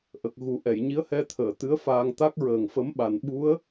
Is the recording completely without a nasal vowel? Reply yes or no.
yes